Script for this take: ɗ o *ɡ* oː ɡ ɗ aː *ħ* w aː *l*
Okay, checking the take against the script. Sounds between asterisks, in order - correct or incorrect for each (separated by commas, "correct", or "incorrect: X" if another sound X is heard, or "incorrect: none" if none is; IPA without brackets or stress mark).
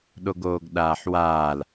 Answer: correct, correct, correct